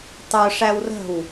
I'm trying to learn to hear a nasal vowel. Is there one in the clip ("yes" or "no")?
no